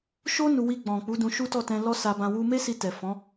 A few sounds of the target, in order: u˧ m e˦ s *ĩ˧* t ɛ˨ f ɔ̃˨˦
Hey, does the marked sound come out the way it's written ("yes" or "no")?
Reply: no